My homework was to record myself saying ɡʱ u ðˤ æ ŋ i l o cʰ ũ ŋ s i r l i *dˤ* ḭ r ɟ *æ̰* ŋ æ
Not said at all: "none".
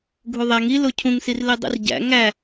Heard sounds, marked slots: dˤ, æ̰

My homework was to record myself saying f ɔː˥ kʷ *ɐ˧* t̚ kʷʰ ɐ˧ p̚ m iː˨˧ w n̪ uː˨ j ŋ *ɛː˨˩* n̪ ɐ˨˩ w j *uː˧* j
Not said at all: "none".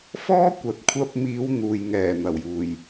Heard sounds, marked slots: ɐ˨, ɛː˨˩, uː˨˩

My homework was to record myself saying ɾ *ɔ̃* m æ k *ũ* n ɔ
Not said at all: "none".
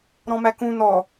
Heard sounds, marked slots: ɔ̃, ũ

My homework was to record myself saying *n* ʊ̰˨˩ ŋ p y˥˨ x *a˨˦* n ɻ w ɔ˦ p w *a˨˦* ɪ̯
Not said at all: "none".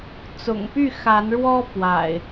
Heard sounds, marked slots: t͡s, a˨˦, a̰˨˩

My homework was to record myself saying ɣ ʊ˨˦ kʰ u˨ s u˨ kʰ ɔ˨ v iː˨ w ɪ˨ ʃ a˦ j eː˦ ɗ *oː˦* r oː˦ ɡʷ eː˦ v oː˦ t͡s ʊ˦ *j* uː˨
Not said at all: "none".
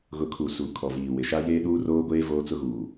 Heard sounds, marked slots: uː˦, ɣ

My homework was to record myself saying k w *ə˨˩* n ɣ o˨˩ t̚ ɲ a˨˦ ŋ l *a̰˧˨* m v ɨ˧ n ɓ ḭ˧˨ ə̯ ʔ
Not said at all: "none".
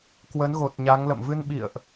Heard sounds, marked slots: ə˨˦, ə̰˧˨

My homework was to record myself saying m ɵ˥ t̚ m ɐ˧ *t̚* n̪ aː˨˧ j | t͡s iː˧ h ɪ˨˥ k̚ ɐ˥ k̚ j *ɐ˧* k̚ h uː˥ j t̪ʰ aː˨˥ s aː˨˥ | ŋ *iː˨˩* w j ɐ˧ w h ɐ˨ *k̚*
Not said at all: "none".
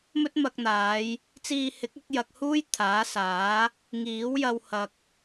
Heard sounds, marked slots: k̚, ɐ˧, iː˨˥, k̚

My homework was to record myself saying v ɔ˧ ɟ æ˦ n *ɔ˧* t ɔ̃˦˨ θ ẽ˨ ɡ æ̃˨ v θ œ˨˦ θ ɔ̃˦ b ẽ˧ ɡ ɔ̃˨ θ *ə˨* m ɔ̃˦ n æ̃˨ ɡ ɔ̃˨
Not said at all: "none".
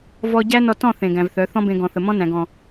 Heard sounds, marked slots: ɔ˧, ə˨

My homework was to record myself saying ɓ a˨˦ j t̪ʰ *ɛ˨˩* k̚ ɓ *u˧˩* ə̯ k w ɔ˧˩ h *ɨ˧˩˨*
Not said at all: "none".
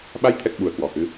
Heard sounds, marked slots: ɛ˨˩, u˧˩, ɨ˨˦

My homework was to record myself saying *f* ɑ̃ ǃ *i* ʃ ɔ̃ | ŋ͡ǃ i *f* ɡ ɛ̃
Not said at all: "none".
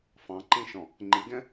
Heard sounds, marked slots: f, ĩ, none

